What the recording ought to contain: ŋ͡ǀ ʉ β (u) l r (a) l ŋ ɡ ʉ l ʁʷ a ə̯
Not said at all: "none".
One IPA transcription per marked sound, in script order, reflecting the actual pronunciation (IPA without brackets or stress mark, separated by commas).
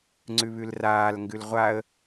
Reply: ʉ, aː